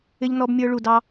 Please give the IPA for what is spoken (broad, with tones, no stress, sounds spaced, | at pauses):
ɪ˧ ʎ n ɔ˧ b mʲ ə˞˧ ɭ u˨ d ɑ˧